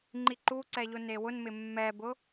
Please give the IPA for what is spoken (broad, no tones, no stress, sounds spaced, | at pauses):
ŋ͡ǃ i ǃ u ǀ ɛ ʎ ʊ n e w ʊ n m ɪ mː ɛ b ʊ